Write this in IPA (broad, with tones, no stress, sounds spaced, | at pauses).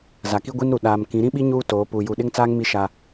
z a˨ k i˦ ɡʷ i˦ n ɾ u˨ ɗ aː˨ m k ĩ˨˦ ɾ ĩ˦ ɓ i˦ ɲ uː˦ t oː˨˦ p uː˨ j u˨ ɗ ɪ˦ ŋ t͡s aː˦ ŋ m i˦ ʃ a˦